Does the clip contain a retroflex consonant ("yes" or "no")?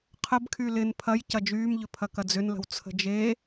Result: no